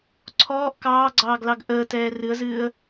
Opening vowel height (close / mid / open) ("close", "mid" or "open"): mid